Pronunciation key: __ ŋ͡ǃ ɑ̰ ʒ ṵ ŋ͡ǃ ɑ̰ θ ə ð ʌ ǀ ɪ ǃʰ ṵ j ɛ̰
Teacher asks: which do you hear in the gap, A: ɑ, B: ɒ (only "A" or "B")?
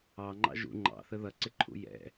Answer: A